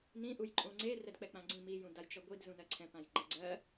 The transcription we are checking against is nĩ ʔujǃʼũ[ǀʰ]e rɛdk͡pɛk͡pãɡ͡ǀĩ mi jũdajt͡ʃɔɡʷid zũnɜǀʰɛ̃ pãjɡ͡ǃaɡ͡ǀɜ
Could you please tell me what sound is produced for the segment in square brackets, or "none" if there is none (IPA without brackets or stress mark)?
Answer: ŋ͡ǀ